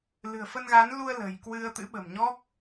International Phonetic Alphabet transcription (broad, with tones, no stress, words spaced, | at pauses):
lɨ̤˨˩ə̯fə˧nɣa˨˦nlu˧ə̯ lə̤˨˩jkwɨ˧ə̯ t̪ɨ̰˧˥ ɓə̤˨˩mɲɔ˦˥k̚